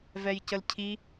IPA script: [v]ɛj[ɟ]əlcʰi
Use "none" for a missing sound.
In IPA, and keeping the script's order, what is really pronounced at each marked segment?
v, c

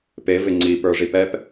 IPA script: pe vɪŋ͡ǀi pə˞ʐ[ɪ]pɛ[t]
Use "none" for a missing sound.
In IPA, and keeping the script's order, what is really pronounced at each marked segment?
i, p

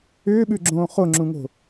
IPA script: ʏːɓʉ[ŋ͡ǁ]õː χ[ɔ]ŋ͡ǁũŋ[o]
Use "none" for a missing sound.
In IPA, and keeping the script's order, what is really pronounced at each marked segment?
ɡ͡ǁ, o, o̤

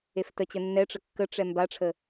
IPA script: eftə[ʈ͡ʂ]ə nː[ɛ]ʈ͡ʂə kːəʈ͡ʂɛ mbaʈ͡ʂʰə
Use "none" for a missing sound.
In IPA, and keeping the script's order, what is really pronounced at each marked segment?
t͡ɕ, ɛ

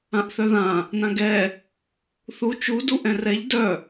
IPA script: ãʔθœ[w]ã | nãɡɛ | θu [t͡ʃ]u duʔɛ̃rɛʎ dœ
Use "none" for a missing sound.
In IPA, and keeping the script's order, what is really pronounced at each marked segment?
ð, t͡ʃ

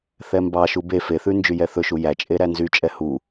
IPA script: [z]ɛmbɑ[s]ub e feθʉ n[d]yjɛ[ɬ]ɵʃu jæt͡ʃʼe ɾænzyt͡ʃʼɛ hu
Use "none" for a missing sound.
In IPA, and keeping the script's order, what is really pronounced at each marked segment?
θ, ʃ, d͡ʒ, θ

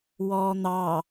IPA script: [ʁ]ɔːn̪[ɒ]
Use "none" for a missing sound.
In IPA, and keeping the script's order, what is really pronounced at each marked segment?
w, ɑ

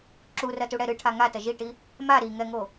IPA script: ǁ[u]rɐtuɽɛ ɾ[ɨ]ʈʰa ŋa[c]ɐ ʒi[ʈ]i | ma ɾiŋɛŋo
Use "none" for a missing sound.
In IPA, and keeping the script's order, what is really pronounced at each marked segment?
u, ɨ, t, ʈ

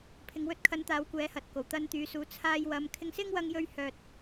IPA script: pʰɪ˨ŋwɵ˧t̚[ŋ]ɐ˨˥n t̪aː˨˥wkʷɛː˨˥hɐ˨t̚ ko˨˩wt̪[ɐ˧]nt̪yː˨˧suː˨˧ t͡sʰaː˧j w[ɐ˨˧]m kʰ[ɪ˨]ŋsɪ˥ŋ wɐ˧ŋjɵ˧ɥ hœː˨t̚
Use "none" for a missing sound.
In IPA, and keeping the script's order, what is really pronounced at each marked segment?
kʰ, ɐ˧, ɐ˨˧, ɪ˧

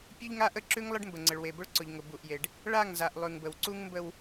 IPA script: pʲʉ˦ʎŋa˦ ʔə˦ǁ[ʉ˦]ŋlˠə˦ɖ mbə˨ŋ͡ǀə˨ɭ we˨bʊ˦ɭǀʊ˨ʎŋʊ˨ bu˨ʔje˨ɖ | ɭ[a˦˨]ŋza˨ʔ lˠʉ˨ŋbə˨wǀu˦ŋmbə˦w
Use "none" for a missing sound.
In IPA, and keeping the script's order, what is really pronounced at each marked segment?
ʉ˦, a˦˨

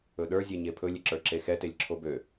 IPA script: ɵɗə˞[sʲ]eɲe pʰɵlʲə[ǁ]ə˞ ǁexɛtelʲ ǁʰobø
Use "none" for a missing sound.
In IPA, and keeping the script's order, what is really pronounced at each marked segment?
zʲ, ǁ

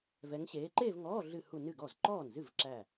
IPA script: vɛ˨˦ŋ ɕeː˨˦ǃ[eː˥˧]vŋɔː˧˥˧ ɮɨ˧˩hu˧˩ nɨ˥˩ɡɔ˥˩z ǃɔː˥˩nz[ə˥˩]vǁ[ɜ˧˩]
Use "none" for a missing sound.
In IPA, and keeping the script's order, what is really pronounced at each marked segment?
eː˥˧, ɨ˥˩, æ˧˩

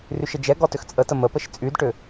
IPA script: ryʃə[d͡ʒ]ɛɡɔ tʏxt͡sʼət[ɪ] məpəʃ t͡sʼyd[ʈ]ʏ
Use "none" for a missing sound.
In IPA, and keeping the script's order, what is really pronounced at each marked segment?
d͡ʒ, ə, ʈ

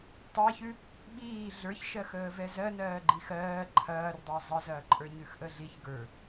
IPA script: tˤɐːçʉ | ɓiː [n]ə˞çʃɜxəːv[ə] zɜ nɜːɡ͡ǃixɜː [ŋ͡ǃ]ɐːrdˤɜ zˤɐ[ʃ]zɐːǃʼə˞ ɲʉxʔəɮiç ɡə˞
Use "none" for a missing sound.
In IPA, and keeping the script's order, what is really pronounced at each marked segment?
ɮ, ɛ, ǃʰ, none

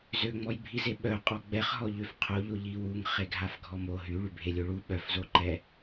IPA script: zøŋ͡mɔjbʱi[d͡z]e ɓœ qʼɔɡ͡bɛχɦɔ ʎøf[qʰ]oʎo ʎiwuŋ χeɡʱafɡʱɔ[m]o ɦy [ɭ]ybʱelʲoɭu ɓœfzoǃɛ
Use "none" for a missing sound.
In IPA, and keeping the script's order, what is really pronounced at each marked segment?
z, qʰ, m, ɭ

